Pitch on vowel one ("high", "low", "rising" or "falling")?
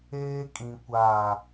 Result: high